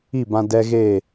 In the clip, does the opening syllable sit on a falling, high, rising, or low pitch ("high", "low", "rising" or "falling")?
falling